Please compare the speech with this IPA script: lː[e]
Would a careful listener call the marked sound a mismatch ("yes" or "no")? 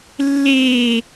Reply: yes